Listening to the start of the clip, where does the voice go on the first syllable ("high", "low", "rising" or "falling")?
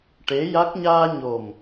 rising